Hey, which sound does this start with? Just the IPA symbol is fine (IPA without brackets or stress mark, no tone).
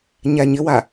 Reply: ɲ